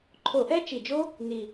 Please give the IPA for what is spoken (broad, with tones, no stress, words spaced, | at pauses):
ǃʰo˧˩˧ʔɛ˦˥t͡ʃi˨˩d͡ʒo˦˥ | ni˨˩